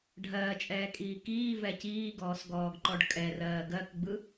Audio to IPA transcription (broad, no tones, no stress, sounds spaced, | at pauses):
ɖʱ ɜː t͡ʃʼ ɛː kʼ iː k iː v ɛ c iː ɡ ɔː s ɡ ɔː ɡ ǃ ɔ ɖ kʼ ɛ r ɜː ɡ ɜ k ɡ͡b ɯ